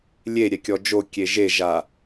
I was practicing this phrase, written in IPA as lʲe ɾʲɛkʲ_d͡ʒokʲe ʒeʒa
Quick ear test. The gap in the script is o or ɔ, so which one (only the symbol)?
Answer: ɔ